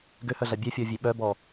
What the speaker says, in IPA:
ɡøhœɮa bʲœfʲɔvʲe ɓœbɔ

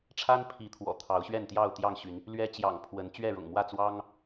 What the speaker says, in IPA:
ʈ͡ʂʰa˦npʰi˨˦ t̪ʰwɔ̰˨˩t̪ʰɑ˨˦ʊ̯ ɕɥɛ˥˨nt̪jɑ˥˨ʊ̯t̪jɑ˥˨ŋɕy˨˦n | lɥɛ˦t͡ɕjɑ̰˨˩ŋpʰwə˨˦n t͡ɕɥɛ˥˨ɻʊ̰˨˩ŋmwä˥˨ t͡swɑ˦ŋ

